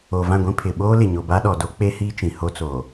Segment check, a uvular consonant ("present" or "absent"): absent